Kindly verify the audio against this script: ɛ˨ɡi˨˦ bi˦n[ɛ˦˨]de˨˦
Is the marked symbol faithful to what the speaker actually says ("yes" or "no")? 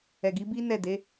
yes